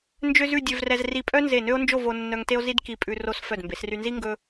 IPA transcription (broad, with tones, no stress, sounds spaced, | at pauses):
n d͡ʒ ø˥ z ʉ˥˧ dʲ ø˧ v r ɛ˧ z r i˧˩ pʼ œ˥ n z e˧˩ n ø˥ o̯ n d͡ʒ o˥˧ v o˧ nː œ˧ ŋ t e˥ o̯ z i˥ d k i˧ pʼ ʉ˧ r o˥ s f œ˧˩ d m b e˩˧ s r y˧ n z i˥ ŋ ɡ ɵ˥